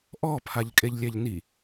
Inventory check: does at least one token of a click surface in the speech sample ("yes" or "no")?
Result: no